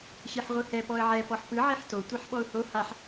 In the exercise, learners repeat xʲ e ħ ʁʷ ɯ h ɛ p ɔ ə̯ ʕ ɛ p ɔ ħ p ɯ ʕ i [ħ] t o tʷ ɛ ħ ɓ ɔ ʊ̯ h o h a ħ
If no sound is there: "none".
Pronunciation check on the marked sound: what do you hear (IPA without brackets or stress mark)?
ħ